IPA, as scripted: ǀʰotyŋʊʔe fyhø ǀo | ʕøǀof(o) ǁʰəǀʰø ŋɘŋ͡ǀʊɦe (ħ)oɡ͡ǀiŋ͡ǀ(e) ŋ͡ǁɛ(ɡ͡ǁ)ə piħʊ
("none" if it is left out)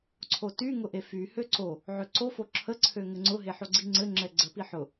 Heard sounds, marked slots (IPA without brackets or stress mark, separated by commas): o, ħ, ɘ, ɡ͡ǀ